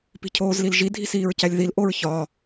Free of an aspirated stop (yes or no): no